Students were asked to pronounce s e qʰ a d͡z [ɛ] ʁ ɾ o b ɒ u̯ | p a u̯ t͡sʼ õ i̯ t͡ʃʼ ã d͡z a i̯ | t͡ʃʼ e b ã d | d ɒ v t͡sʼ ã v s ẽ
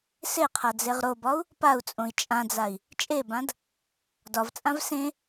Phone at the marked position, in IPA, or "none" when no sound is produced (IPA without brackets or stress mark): e